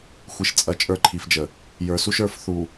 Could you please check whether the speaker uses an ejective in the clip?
yes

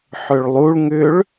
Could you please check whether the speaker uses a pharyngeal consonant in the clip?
yes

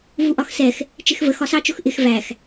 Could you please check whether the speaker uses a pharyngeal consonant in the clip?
no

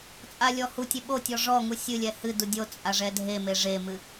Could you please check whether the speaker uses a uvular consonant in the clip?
no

